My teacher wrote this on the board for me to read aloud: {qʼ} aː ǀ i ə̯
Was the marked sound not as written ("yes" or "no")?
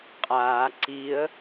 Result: no